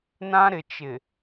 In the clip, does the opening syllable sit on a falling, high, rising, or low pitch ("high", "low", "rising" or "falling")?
high